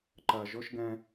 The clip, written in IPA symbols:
ǃ ɜ ʒ ɵ ʃ ɡ ɛ̃

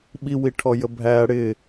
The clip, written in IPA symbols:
ɓ i w i ʈʰ ɔ j ə bʱ æ ɽ ɪ

